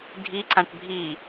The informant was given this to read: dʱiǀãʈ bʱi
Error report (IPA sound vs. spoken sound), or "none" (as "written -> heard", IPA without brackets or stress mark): none